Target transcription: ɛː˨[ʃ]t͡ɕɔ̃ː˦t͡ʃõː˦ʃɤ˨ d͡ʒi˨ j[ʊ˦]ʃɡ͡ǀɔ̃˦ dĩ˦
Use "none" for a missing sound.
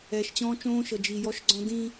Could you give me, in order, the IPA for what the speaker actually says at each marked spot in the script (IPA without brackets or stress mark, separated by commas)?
ʃ, ɔ˦